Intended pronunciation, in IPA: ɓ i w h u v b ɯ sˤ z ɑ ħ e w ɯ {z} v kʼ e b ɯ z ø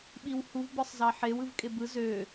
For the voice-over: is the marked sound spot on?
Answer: no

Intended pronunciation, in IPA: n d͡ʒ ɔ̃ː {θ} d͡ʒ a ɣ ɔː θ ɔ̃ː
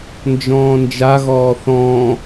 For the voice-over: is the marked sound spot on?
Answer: no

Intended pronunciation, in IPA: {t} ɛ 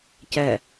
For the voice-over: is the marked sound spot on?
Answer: no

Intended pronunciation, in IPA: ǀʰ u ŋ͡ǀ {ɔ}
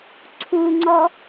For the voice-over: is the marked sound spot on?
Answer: yes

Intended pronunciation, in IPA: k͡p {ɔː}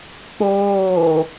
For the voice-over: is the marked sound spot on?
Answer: no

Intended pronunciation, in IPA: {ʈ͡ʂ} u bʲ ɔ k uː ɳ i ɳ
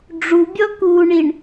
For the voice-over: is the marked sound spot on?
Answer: no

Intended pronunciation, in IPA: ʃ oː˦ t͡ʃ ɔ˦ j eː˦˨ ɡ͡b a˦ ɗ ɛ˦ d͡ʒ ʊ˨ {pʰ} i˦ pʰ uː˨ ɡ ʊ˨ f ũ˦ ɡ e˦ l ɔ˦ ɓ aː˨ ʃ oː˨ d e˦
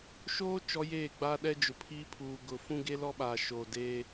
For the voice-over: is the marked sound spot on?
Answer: yes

